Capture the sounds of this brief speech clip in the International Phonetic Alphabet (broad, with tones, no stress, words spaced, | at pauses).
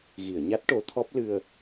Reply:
ɣi˨˩˨ə̯ɲa˦˥t̚ ʈo˧˥t̪ʰɔ˦˥p̚ lɨ˧ə̯